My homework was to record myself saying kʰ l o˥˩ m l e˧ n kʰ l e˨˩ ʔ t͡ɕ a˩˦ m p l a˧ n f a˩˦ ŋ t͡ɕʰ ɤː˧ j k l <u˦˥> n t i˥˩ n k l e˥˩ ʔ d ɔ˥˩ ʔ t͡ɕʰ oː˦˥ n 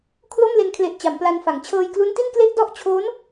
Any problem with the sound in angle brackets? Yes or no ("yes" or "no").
no